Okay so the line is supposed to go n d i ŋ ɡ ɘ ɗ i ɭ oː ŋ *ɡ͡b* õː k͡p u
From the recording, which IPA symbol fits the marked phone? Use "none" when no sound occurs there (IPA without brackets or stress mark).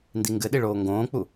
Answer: ɡ